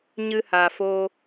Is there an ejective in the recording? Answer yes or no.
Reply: no